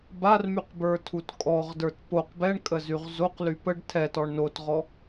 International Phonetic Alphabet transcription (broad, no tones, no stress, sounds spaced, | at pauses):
b a r m y q b ə˞ tʰ u t kʼ ɔ ʁ d ə˞ t p o q b ɛ ɳ kʼ ə z y ʁ z o q l y p ə ɖ tʰ ɛ t ɔ ɳ n o t ʁ ɔ